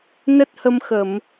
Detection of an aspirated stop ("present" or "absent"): absent